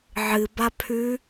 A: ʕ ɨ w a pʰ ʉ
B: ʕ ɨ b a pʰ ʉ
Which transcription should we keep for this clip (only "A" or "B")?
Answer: B